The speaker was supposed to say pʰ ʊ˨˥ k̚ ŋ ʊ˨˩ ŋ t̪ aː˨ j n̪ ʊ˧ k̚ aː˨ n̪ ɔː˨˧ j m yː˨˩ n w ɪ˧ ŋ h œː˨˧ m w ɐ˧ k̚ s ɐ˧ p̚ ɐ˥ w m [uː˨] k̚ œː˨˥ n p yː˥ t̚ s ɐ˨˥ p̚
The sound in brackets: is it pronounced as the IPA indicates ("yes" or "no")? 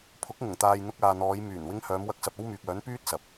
no